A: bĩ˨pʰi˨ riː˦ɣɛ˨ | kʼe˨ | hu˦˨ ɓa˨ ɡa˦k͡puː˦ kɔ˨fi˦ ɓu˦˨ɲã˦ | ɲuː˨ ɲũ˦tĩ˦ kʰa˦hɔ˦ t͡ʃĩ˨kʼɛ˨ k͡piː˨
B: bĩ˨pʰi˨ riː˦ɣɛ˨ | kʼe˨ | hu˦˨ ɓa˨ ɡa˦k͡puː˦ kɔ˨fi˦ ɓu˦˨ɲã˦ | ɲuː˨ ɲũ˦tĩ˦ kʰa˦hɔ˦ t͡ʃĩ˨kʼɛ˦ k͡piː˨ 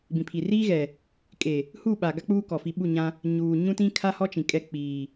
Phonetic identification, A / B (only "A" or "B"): B